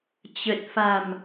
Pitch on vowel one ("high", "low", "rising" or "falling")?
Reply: low